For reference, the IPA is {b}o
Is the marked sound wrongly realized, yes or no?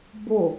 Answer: no